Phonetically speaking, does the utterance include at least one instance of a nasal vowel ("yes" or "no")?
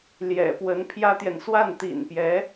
no